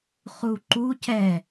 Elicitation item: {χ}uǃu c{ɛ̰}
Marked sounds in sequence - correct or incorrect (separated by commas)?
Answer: correct, incorrect